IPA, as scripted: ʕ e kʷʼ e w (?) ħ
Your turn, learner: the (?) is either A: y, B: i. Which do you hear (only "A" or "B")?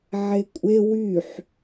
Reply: A